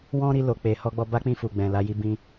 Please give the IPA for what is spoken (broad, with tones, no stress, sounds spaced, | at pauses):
w ɔ̃˦ ɾ i˧ l o˧ k͡p e˨ h ɔ˧ ɡ͡b ɔ˧ b a˦ k͡p ĩ˦˨ f u˨ ɡ͡b ɛ̃˨ l a˧ j i˧ b ĩ˧